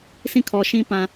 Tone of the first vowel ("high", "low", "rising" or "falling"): falling